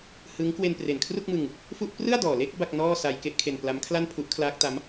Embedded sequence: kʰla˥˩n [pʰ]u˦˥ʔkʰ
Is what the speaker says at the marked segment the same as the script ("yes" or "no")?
yes